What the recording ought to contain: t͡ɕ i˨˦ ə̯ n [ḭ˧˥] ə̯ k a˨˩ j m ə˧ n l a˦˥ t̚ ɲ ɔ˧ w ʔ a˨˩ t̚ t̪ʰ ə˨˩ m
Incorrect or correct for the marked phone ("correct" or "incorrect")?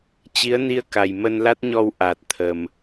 incorrect